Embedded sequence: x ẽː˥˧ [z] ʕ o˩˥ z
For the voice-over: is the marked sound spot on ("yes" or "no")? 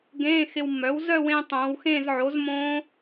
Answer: yes